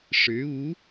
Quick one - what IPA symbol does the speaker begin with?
ʂ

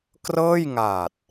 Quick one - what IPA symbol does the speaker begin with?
k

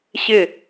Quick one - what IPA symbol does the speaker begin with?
ɕ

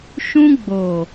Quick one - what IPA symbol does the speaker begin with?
ʃ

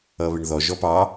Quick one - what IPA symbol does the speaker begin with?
ʌ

